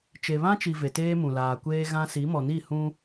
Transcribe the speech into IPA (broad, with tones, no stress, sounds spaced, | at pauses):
t͡ʃ e˨ β ã˦ t͡ʃ i˨ v e˨ t eː˦ m ũ˨ l aː˨ kʷ eː˦ ɣ ã˦ s i˨˦ m ɔ˨ n i˦˨ h ũ˦